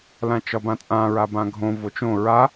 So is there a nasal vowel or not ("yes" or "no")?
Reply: yes